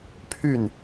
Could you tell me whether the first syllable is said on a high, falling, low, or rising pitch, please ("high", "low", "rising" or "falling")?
falling